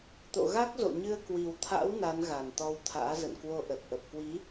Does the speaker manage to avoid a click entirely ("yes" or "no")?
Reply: yes